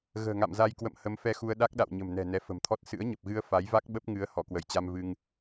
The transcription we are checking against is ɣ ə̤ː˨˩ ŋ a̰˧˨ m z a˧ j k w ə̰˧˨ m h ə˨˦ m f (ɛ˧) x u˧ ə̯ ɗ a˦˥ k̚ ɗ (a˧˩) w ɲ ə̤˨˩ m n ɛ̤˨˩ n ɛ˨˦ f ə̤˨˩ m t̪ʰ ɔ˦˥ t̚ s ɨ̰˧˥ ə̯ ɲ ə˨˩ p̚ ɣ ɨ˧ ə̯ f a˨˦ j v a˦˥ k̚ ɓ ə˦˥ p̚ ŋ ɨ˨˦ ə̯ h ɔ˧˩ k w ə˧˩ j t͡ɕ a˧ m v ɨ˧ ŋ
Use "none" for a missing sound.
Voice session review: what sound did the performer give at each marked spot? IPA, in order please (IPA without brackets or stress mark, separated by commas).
ɛ˧, a̰˧˨